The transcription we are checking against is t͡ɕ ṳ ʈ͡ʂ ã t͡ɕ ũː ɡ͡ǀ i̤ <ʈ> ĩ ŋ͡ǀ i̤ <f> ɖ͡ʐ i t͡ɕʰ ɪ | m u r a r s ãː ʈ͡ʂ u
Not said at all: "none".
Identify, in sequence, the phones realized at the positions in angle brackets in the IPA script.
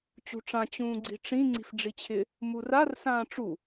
ʈ͡ʂ, f

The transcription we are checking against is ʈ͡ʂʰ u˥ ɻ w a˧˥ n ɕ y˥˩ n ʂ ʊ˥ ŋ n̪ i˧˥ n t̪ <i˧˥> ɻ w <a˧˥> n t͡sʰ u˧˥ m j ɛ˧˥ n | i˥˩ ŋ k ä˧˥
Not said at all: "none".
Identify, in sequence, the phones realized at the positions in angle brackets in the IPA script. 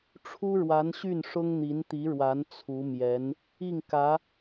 i˧˥, a˧˥

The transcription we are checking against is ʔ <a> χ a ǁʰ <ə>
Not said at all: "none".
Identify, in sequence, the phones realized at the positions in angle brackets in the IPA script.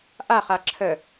a, ə

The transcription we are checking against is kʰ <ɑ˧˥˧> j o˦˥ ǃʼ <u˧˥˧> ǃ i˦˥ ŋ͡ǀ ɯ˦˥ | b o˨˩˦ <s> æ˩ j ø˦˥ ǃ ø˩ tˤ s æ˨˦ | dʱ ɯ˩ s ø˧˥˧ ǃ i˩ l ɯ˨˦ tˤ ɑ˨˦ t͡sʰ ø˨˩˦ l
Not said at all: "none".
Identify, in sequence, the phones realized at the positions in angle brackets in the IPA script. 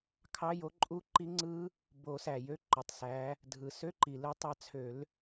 ɑ˧˥˧, u˦˥, s

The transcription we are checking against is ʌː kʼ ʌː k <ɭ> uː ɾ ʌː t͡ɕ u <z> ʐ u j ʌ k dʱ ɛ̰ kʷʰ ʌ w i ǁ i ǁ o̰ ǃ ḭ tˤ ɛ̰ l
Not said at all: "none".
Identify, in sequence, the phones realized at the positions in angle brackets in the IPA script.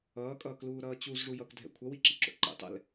l, z

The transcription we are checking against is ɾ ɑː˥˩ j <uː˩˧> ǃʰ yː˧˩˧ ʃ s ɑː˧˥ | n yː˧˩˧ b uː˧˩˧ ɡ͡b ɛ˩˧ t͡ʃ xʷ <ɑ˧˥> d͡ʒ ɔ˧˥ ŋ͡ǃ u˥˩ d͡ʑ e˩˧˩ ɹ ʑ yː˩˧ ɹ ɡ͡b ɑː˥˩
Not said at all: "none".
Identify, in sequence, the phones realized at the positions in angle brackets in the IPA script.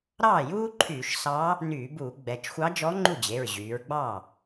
uː˥, ɑ˧˥

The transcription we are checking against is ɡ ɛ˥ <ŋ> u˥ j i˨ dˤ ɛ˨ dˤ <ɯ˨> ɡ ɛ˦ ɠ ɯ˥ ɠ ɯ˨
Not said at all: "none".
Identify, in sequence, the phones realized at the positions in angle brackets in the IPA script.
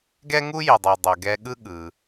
ŋ, u˨

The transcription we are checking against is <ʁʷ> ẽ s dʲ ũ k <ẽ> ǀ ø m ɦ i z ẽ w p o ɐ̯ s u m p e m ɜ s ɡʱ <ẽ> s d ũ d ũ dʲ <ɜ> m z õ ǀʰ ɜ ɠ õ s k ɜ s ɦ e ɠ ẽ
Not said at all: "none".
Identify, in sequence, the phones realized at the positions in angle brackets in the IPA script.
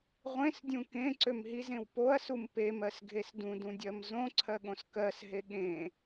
ʁʷ, ẽ, e, ɜ

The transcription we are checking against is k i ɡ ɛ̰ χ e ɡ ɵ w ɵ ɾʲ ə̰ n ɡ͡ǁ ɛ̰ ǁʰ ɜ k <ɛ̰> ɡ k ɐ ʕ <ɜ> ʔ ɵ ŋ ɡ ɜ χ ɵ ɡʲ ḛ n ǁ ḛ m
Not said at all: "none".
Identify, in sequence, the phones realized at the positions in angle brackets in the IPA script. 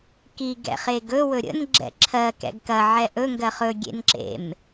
ɛ̰, ɛ

